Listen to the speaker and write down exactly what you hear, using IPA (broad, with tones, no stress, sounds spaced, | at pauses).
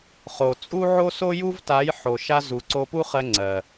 χ o˨ t͡sʼ u˦ ʕ o˦ s o˦ j u˦ v t a˨˦ j ħ o˨ ʃ a˧ z u˨ ǀ o˧ p u˦ χ ɜ˧ ŋ͡ǀ ɜ˨